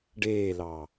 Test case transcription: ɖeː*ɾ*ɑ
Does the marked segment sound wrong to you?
yes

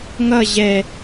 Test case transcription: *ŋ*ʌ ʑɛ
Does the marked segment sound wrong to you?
no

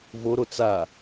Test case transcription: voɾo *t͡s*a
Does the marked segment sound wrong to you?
no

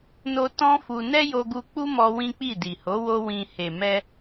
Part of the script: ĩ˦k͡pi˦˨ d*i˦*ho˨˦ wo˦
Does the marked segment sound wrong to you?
yes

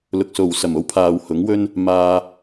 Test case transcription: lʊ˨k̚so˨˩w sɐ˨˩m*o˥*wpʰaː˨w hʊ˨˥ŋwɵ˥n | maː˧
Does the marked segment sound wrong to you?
yes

